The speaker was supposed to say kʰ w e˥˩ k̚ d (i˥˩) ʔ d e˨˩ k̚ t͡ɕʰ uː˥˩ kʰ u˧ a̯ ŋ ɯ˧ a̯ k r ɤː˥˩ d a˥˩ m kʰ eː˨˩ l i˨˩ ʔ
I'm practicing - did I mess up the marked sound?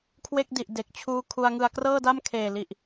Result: yes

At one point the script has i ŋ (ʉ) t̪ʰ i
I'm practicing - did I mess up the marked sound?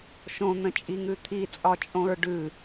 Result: no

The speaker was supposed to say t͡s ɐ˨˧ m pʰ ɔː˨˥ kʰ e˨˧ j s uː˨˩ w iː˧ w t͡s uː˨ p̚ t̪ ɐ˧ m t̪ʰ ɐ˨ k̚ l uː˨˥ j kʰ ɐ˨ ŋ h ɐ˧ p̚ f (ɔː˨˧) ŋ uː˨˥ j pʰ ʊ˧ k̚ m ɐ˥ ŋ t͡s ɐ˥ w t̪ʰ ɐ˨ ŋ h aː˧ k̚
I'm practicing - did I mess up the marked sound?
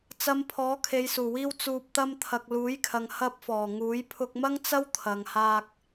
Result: yes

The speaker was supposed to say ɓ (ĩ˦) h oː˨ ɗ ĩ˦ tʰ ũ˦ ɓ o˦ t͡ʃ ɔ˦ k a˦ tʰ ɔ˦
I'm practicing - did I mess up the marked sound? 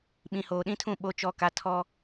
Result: yes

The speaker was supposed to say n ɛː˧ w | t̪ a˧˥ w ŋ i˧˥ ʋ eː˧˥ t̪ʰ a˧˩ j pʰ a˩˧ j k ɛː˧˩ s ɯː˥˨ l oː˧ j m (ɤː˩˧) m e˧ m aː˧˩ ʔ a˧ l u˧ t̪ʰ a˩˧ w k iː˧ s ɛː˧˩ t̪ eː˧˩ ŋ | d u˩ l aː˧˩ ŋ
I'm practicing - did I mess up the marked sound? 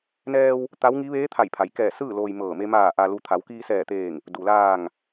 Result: yes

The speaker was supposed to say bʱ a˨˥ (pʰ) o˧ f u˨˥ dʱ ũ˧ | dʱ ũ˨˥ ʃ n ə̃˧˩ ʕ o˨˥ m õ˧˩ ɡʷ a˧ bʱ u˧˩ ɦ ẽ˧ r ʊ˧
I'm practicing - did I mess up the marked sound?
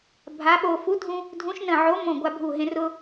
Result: yes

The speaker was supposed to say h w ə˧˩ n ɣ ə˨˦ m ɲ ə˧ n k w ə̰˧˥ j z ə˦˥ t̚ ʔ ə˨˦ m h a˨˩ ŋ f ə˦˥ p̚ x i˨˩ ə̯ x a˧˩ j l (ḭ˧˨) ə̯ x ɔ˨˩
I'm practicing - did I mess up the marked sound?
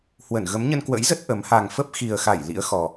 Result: yes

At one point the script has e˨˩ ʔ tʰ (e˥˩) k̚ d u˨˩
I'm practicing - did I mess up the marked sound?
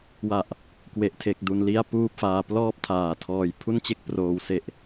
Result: yes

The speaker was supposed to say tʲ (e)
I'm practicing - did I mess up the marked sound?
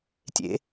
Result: yes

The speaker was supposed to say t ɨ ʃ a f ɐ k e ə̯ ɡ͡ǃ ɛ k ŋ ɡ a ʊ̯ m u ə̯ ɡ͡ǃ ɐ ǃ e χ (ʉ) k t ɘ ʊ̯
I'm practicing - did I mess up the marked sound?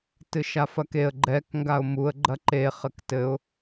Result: yes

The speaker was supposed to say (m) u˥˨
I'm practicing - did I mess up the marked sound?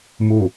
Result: no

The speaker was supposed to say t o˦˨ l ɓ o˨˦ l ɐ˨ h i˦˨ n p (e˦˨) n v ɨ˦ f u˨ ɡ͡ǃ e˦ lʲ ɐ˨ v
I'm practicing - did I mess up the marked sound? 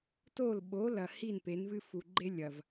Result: yes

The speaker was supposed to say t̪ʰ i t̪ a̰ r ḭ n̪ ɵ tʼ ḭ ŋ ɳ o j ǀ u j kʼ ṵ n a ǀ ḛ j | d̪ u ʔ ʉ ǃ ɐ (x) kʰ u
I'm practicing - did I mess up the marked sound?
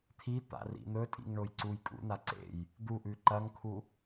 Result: yes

